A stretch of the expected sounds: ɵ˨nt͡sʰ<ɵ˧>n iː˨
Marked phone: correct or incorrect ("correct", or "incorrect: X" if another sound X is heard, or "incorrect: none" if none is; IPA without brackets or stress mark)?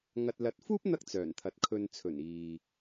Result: incorrect: ɵ˨˩